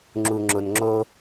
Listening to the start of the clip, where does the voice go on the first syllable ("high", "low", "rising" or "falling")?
low